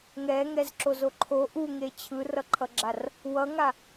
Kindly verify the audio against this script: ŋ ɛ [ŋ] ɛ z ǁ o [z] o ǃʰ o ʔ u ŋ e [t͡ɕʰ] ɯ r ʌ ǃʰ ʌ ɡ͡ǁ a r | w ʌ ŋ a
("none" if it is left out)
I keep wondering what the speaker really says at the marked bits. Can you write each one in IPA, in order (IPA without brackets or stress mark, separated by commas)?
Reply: ŋ, z, t͡ɕʰ